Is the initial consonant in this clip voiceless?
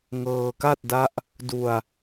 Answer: no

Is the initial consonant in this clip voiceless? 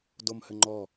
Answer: no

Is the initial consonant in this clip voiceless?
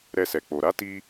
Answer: no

